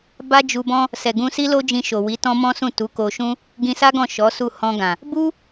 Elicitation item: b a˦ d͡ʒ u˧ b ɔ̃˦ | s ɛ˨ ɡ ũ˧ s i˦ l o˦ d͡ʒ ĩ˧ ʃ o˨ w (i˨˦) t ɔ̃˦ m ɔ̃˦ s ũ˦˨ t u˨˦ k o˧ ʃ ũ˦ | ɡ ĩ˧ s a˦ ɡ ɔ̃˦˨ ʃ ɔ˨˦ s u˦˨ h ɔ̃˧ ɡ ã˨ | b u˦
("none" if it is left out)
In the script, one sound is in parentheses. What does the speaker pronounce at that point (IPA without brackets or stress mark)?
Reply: i˨˦